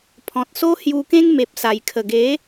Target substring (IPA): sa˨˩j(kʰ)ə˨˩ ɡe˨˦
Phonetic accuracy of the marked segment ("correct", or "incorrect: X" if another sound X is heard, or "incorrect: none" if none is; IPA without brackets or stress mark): correct